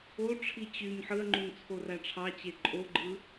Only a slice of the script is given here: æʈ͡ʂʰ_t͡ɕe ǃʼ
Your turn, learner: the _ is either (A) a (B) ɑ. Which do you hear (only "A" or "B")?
B